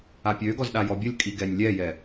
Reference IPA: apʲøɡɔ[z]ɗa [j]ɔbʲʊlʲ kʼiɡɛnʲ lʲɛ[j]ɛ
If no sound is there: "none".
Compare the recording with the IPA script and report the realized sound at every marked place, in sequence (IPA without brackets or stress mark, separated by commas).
z, j, j